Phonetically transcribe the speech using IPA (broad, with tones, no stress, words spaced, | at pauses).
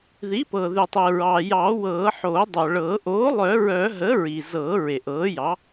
ði˩˥pɤ˩ðʉ˩tˤi˩ ɹɑ˩jɑ˨˩˦wɤː˨˩˦ħo˨˩˦ dˤœ˩ɭɤː˨˩˦ ʔoː˩˥lˠœ˨˩˦ɹœ˨˩˦ɦə˩˥ ɹi˩zɤ˨˩˦ ɹe˩ʔɤː˩˥jɑ˩˥